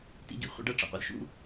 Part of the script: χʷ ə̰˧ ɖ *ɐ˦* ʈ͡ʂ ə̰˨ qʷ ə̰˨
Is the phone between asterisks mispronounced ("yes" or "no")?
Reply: no